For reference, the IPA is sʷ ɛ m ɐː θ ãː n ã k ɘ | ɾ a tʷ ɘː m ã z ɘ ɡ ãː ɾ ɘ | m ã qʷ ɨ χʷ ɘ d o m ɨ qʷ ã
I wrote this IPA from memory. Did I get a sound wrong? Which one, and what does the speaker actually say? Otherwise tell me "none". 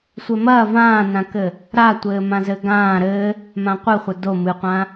θ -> v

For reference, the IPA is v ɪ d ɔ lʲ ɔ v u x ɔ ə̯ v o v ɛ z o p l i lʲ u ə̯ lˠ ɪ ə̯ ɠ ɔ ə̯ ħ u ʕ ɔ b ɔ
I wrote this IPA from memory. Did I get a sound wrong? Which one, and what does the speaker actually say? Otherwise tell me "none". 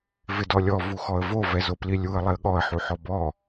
ʕ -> ħ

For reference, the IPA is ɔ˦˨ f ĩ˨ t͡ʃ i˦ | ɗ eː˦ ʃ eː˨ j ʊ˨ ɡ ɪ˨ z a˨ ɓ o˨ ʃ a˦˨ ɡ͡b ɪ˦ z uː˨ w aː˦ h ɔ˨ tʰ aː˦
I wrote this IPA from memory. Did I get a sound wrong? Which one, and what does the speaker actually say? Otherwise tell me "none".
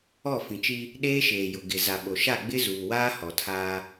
none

